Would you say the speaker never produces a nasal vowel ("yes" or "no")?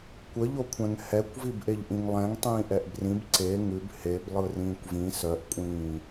no